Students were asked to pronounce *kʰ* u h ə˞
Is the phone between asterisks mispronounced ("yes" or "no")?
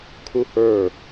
no